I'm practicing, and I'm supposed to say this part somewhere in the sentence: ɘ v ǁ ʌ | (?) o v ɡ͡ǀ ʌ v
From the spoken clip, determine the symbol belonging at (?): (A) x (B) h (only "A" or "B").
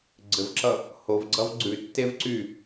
B